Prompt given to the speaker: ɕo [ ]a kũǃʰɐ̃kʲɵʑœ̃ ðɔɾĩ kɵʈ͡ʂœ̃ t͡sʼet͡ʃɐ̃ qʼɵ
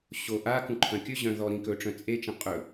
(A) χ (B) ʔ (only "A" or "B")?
B